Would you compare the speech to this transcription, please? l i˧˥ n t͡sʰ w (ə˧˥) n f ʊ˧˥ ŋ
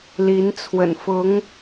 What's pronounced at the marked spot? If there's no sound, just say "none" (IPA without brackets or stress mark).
ə̰˨˩